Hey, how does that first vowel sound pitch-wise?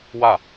falling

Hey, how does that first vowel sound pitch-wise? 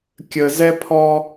low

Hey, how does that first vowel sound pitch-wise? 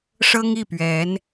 high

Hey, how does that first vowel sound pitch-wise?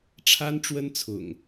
high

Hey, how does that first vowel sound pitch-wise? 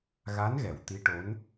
rising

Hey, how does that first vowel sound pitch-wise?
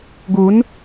rising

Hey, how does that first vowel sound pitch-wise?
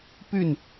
falling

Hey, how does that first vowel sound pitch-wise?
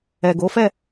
low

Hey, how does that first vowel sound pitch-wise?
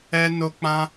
high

